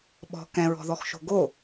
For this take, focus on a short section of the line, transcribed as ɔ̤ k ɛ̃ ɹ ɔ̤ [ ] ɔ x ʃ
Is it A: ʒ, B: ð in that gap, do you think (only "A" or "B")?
B